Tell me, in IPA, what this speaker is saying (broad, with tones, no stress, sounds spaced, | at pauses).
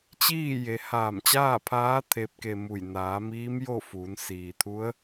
t͡ɕ iː˥˨ j e˩˧ h aː˧˩ m t͡ɕ aː˥˨ pʰ aː˧˥ t̪ʰ e˧˥ p̚ k e˧ m u˧˩ j n aː˩˧ m iː˧˥ m j o˥˨ f uː˩˧ n s iː˩ t̪ʰ u˧˥ ə̯